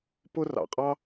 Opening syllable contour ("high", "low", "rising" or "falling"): high